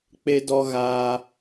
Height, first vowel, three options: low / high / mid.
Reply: mid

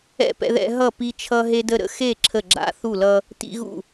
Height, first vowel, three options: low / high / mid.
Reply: mid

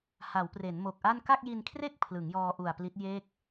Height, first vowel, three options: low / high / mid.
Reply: low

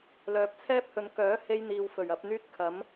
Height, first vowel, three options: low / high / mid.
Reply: mid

